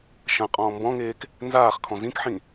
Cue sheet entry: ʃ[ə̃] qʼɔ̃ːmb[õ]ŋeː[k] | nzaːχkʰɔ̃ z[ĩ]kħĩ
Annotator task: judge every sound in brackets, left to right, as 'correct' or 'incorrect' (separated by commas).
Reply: incorrect, incorrect, correct, correct